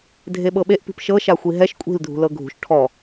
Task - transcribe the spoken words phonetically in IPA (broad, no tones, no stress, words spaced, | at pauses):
dʱeɓɤɓeʔ pi̤pʃɤ ʃaxʷiɦɛʃ kʷʼi̤l dʱṳlɤɡʱṳʃ ʈʰɔ